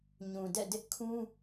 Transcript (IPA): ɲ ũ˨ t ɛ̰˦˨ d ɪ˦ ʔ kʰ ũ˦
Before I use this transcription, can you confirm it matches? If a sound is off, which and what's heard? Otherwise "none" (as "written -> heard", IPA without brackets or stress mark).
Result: t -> d